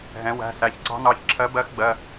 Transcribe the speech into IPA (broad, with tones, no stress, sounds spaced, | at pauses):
ɦ ɛ̃˩˧ w æ̤˩˧˩ s æ˩˧˩ ç ǀ ɑ̤˧˥ n ɑ˩˧˩ ç ǁʰ ɜ˧˥ b ɜ˧˥ x ɡ͡b ɜ˩˧˩